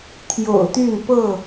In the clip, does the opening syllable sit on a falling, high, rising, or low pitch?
low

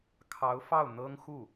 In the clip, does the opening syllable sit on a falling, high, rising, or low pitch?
rising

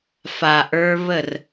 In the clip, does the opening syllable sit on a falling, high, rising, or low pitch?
low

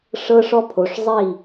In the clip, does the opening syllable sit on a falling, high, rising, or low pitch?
high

